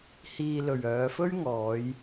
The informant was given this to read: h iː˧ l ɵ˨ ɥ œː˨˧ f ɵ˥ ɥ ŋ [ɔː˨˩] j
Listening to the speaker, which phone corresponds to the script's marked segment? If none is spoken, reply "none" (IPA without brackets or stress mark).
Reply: ɔː˨˧